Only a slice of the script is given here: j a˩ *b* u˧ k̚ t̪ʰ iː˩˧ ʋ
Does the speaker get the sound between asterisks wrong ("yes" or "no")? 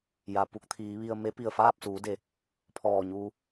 yes